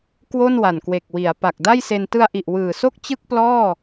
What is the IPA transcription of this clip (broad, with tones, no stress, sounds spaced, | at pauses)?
k w o˥˩ n w a˨˩ n k w e˨˩ k̚ w i˩˦ a̯ p a˨˩ k̚ d a˥˩ j s e˧ n t ɯ˧ a̯ ʔ i˨˩ ʔ w ɯː˨˩ s o˥˩ k̚ t͡ɕ ɯ˥˩ k̚ p l ɔː˥˩